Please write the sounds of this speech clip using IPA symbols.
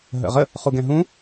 ɦə̰ʁə | χuɡɛ̃ɦũ

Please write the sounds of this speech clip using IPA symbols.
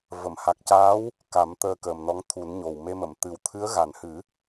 və˨˩˨mha˨˩k̚caː˧˥w | ka˨˩˦m t̪əː˧kəː˨˩mnɔ˧˥ŋ t̪ʰu˨˩˦nɲo˨˩wme˧mə˨˩˨m t̪ɨ˨˩wt̪ʰɨ˧˥ə̯ɣa˨˩nhɨ˨˩˦

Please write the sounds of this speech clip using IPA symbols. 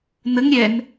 nəŋ ɾʲɛn

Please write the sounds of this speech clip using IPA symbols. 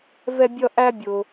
vɛ˥ bʲʌ˥ʔæ˥ bʲʊ˧

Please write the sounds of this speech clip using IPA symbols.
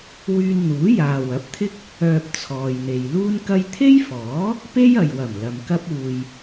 wyː˧nn̪uː˨˥ jaː˨wɐ˨˥p̚t̪ʰɪ˥k̚ | œː˧p̚t͡sʰɔː˨jn̪e˨j luː˥nkɐ˥j t̪ʰe˥jfɔː˨˥ | pe˥jɐ˨jwɐ˨˩m lɐ˨mkɐ˥p̚uː˧j

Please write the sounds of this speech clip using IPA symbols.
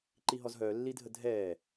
ǃiɦɔzɦœː lːidʱədʱɛː

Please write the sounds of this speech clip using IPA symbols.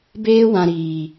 beː˦wã˨ ɾiː˨

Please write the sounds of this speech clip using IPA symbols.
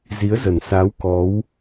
zi˨˦ə̯zə˨˩nsa˨˦w kɔ˨˦w

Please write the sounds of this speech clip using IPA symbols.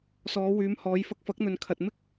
sɔː˨˧wyː˨˧mhɔː˨˧j fɐ˧k̚fɐ˨˥k̚n̪ɵ˨n kʰɐ˨t̚mɪ˥k̚

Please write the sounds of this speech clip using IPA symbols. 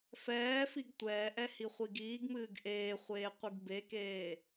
fɛːfiɡ tʷɛːʔɛ hiχʷiɡiːɡmɨːɡ ʔeːχʷeː qʷɨɡbekeː

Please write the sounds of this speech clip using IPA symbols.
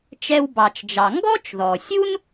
t͡ʃɛ˧wbɑ˩t͡ʃd͡ʒɑ˩ ŋɡɔ˥t͡ʃðɔ˩sʲu˥n

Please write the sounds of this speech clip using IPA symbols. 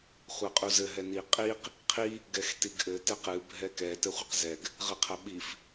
χʷɛqʼuzɘ ɦɛni qʼiq | qʰi | ɡɛxtiɡʔɘ tɛqɨ bʱɛkɛ tɘχʷɘqzɛɡ | ʁɨqʰɐɓif

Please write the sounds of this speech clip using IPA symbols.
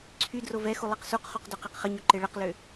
ǀʰy drovɛxu lˠeqsuqχuq døqeqχəɲø ǃeɭəqlø

